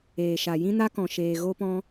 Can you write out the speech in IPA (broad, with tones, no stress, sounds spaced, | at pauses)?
eː˨ ʃ a˨ j ĩ˦ n a˦ k ɔ̃˨ ʃ eː˨ ɣ o˧ p ɔ̃˧